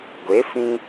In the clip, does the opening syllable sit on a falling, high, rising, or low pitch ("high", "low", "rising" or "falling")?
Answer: rising